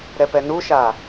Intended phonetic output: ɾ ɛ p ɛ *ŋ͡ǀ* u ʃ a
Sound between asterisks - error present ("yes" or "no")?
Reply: yes